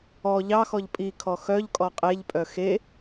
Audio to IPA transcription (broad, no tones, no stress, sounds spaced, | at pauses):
ɔ ʎ ɑ x ɔ ʎ pʼ i kʰ ɔ x œ ʎ kʼ ɔ qʼ e ʎ pʼ œ x e